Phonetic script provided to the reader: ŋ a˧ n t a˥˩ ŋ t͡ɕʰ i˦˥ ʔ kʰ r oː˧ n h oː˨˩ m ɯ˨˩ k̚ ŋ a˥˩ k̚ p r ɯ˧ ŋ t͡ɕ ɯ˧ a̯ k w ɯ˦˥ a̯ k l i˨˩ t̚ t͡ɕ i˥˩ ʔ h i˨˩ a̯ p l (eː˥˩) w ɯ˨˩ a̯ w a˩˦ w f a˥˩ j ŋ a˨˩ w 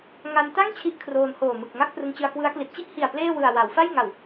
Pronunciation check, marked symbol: correct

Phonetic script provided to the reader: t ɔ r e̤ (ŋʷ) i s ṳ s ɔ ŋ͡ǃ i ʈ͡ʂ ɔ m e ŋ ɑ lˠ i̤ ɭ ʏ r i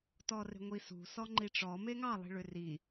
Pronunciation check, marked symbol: correct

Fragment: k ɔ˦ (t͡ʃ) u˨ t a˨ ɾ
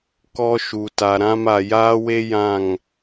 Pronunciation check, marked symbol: incorrect: ʃ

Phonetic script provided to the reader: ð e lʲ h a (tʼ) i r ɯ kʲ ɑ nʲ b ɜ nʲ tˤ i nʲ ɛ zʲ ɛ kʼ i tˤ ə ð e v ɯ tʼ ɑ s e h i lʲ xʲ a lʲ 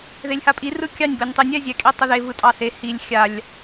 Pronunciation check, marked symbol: incorrect: pʼ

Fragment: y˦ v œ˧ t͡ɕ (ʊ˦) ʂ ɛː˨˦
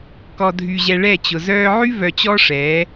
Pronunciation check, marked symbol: incorrect: ɔ˦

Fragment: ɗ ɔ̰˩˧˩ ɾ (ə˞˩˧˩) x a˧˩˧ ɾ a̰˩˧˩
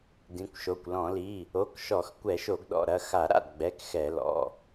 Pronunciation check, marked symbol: incorrect: ɐ˩˧˩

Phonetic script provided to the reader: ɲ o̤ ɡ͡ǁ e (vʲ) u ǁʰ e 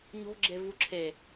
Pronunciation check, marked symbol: incorrect: v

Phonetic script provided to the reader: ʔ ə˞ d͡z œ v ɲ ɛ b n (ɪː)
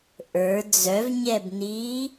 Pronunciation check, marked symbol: incorrect: iː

